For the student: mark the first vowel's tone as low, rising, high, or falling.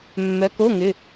rising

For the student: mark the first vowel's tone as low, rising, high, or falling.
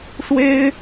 high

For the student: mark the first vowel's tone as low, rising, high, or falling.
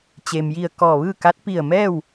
low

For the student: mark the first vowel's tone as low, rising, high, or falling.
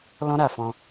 high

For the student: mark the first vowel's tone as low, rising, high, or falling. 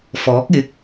rising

